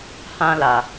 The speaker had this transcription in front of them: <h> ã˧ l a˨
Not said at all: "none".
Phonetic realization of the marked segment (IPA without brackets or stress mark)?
h